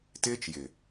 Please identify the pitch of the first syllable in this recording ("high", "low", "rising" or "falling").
high